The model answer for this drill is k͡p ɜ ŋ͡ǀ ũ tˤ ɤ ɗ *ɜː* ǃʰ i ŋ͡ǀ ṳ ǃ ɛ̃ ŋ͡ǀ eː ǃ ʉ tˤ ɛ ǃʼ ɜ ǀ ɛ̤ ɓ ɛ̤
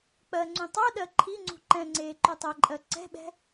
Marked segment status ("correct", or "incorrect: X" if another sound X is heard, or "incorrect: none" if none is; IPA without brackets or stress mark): incorrect: ɜ